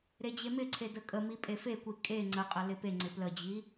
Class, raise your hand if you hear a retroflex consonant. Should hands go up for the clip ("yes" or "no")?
no